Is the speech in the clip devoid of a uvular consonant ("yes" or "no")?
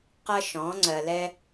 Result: no